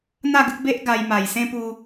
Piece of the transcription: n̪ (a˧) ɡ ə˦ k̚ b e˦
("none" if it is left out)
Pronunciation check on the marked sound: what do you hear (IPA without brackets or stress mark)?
a˥˧